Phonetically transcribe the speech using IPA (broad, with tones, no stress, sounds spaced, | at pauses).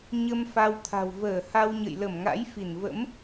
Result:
ɲ ə˧ m f a˧ w t̪ʰ a̤˨˩ w v əː˧˩ h a˧ w ɲ ə̰˧˨ j l ə˧˩ m ŋ a̰˧˥ j f i˧˩ n v ə̰˧˥ m